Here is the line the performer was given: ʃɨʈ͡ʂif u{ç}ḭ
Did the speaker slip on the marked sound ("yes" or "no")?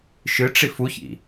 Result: no